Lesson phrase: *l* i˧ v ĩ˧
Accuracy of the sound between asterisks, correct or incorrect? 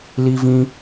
correct